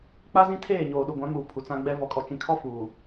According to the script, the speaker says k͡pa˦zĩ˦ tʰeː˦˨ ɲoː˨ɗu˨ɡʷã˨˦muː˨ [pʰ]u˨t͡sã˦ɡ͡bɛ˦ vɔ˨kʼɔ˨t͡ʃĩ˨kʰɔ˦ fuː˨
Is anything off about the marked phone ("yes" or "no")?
no